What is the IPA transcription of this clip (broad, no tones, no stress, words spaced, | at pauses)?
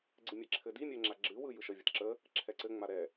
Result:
ɡ͡ǀɨmʲɛǁʰɘdi mʲɛŋ͡ǁaɡ͡ǁɨ wɯjɯʃə vʲətǁə | ǁʰɛǀɘ ŋ͡maɾɛ